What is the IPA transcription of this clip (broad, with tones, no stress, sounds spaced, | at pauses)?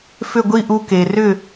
f ʏ˥˩ ɡʷ i˥˩ ʔ u˧ k e˩ r ʏ˥˩